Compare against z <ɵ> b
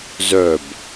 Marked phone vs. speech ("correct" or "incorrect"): incorrect